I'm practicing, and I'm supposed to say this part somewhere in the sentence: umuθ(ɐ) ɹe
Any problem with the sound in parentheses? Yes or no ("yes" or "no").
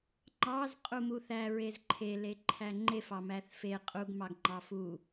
yes